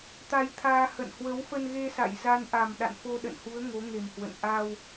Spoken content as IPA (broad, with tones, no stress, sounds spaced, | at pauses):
t̪ a˧ j t̪ʰ aː˧ h ə̰˧˨ n h w ə˨˦ w f ə˧ n ɣ e˧ s a̰˧˨ j z a˧ n ʔ a˨˩ m ɗ a̰˧˨ n f o˧ ɗ ə̰˧˨ n h u˨˦ ə̯ ŋ o˨˦ ŋ e˨˩ m h w ə̰˧˨ n ʔ a˧ w